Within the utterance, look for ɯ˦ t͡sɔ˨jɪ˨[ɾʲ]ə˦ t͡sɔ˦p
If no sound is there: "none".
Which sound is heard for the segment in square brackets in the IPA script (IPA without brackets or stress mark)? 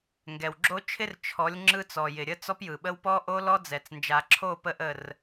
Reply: ɾʲ